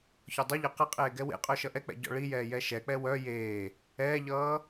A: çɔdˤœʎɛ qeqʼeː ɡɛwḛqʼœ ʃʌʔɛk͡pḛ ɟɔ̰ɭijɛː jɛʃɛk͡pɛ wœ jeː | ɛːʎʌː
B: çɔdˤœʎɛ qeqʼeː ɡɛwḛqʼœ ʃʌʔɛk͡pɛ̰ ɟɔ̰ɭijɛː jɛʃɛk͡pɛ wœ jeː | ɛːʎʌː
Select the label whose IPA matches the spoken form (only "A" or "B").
B